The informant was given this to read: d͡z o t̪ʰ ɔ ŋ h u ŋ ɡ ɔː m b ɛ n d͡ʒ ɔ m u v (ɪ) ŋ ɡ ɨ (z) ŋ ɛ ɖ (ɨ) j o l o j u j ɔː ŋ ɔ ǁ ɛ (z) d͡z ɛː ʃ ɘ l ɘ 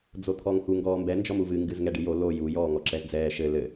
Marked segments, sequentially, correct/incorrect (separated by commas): incorrect, correct, correct, correct